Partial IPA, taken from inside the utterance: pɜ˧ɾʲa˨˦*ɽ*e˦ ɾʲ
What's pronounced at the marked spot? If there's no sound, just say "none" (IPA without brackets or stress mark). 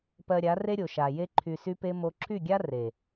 r